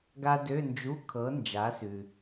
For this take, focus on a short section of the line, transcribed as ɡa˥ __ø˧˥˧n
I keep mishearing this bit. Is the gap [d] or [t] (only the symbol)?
d